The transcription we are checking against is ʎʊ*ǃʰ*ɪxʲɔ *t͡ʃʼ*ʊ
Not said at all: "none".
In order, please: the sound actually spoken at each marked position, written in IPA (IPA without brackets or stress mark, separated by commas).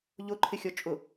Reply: ǃʰ, t͡ʃʼ